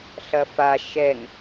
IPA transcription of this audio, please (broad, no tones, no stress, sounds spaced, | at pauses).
ɬ ɐ f a ʃ ɛ ŋ